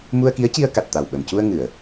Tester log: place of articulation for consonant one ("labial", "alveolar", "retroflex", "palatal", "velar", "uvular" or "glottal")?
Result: labial